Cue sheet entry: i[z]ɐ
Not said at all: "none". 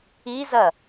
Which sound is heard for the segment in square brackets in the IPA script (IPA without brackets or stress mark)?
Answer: z